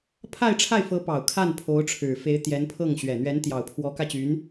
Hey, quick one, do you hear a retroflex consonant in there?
yes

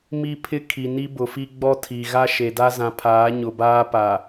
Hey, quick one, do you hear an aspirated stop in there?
yes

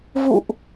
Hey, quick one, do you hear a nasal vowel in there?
no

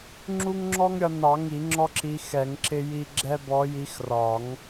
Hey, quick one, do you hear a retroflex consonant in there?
no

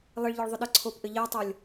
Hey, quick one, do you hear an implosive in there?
yes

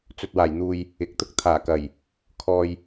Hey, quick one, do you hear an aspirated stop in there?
yes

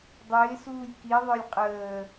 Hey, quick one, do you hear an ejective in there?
yes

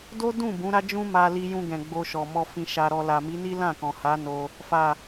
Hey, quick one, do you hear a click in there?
no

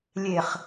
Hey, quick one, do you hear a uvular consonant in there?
yes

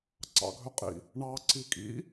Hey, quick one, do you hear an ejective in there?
yes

